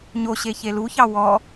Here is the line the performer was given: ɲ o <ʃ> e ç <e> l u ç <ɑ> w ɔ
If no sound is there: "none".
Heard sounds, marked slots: ɕ, e, ɑ

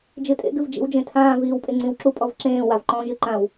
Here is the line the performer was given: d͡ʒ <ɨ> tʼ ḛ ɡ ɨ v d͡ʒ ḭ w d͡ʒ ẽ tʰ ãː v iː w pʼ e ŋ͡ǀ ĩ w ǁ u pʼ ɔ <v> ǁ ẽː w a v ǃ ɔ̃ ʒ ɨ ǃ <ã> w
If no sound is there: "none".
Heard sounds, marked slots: ɨ, v, ã

